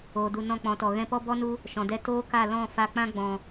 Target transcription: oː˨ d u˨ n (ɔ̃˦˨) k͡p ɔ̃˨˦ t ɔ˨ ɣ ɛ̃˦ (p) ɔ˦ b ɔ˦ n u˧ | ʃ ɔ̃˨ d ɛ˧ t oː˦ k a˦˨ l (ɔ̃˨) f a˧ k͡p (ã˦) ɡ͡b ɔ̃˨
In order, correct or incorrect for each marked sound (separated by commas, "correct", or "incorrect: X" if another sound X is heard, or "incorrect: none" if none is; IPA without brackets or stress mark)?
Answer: correct, correct, incorrect: ɔ̃˦˨, correct